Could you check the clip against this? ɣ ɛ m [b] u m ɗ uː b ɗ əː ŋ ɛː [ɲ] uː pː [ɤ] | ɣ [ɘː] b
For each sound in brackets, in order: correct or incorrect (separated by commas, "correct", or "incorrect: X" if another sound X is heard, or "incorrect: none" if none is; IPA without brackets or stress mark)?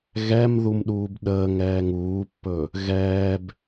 incorrect: ð, incorrect: ŋ, incorrect: ɵ, incorrect: ɛː